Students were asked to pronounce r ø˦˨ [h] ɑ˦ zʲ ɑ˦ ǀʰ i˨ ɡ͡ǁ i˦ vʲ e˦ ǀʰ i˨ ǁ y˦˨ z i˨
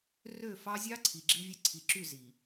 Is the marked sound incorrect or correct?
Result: incorrect